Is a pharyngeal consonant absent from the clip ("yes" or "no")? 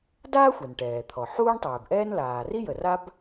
no